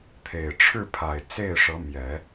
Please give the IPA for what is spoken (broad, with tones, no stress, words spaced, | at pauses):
t̪ʰe˨˩ɪ̯ʈ͡ʂʰɻ̩˥˩pʰa˨˩ɪ̯ t͡se˥˩ɪ̯ʂɤ˧˥mjɛ˨˩˦